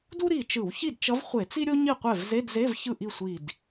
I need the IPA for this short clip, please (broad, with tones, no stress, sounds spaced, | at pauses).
d u˥ ɾ i˧˩ t͡ʃ ɯ˧˩˧ w ç i˥˩ d t͡ʃ ʌ˧˥ v χʷ e˧˩˧ t͡s i˥ ɾʲ o˥ ɲ i˥˩ qʷ ɛ˥˩ v z e˧˥˧ d z e˧˥˧ v ç ɯ˥˩ ʔ i˥˩ sʷ i˧˩ d